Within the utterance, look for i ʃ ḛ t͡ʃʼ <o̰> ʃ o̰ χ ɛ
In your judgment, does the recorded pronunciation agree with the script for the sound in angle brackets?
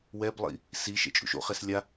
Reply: no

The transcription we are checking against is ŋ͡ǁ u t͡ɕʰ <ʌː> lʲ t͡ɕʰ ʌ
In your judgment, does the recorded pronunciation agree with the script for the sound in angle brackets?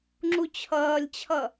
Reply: yes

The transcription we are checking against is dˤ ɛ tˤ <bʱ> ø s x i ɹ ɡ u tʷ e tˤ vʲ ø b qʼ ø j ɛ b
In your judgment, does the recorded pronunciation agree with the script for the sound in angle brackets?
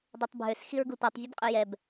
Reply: yes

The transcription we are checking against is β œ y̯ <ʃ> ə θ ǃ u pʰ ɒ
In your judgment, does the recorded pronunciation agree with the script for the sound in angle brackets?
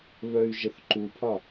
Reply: no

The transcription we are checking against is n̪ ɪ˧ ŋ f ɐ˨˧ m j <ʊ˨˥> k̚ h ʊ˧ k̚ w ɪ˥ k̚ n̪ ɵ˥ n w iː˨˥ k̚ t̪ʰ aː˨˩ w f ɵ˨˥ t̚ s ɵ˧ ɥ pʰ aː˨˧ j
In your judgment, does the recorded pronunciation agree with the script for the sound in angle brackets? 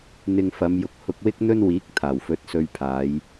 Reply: yes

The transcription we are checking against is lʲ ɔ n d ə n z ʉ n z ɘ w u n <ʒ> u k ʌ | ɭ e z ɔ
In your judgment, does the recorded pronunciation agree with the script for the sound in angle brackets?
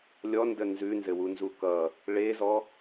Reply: no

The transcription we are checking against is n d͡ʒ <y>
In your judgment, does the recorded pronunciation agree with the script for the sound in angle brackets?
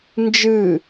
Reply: no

